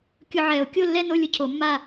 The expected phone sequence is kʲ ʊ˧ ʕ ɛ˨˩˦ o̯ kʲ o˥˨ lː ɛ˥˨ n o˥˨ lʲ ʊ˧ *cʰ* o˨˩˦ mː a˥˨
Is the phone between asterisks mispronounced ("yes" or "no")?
no